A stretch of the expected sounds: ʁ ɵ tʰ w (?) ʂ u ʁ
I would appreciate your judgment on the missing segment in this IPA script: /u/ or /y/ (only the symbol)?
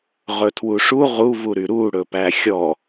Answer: u